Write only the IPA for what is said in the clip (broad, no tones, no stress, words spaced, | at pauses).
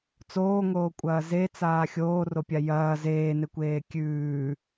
t͡soːŋoːkʷʼɐː zet͡saː xʲoːropʲa jɐː zeːnekʷeː kʲʉː